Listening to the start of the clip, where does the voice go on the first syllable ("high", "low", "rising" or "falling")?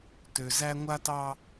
low